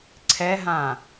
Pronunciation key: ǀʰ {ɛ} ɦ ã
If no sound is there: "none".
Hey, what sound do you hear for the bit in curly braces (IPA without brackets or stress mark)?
ɛ